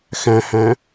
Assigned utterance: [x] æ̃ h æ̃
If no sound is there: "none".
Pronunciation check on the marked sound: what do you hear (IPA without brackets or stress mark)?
x